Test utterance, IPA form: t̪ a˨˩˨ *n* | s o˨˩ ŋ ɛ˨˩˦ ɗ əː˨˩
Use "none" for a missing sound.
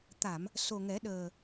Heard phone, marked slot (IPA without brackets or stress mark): m